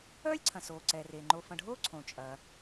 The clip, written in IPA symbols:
œː˥lʲǀʰɐ̃˩soː˩ ǀɛ˩ re˩ŋ͡ǃo˨fɐ̃˨ɖʱoː˥ ǀʰõ˩ t͡ʃʼɐ˩

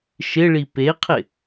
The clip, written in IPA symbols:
ʃɪɭi peqʰɪ

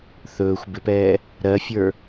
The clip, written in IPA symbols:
θɵːxʷ bɪpɛː | ɾɜfʲə˞

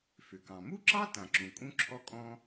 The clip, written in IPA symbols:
fʏ˩kɑ̃˩ mu˥ǁɑ˥ tã˩ǁũ˩ kʼũ˥ǁʰɔ˥ kʼɔ̃˥

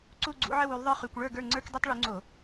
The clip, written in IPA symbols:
ǀu˦˨ɡ͡ǀṵ˨˥ʕə˦˨w u˨˥lˠðˤə˞˦χy˧˩˧kʷ ɭə˞˦˨ɡə˞˦˨ ŋ͡ǀə˞˦k dɛ˦tˤɭu˨˥ŋ͡ǀo˧˩˧

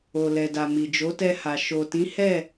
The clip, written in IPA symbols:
o˨lɛ˨da˨ mi˨d͡ʒo˨˦tɛ˧ha˨ ʃo˨tĩ˨˦hɛ˦˨

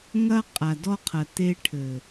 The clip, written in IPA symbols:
ŋɐ˧ qʼa˨dɔ˧qʰɐ˨ te˧ʈʰɘ˨

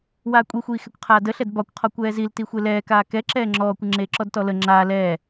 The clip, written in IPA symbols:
waːkʷʼixʷiːxɛkʷ qʰaːdəɬɛd bɒkʷqʰɔ kʷɛːziltixʷe lɛːkaː kɛǁɛː ŋ͡ǁɔːkʷə ŋ͡ǁeːǁɔdtɔlə ŋ͡ǁaː lɛː

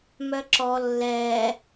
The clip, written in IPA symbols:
mœǁɔ lːɛː

